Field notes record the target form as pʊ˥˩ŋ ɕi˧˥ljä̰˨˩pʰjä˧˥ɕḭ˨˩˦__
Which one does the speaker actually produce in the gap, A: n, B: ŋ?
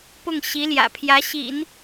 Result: A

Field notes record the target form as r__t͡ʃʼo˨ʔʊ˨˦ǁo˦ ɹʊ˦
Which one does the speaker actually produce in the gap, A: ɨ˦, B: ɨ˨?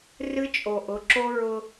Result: A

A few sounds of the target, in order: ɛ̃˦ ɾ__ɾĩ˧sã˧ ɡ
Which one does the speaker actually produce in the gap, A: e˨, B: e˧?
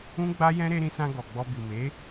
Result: B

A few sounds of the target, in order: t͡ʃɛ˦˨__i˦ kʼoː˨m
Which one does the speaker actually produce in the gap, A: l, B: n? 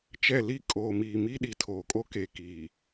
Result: A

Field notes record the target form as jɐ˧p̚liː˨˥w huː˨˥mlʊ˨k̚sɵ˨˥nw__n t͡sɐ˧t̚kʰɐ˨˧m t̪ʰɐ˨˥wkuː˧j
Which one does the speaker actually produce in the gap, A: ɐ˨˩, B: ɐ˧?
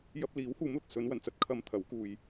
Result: A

